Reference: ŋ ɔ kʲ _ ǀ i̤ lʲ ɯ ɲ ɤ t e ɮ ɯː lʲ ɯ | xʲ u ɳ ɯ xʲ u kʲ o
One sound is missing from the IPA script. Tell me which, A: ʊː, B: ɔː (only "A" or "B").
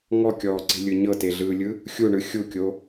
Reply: B